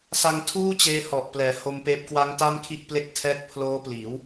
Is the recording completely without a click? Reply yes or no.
yes